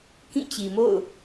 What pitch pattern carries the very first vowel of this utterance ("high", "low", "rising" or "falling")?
falling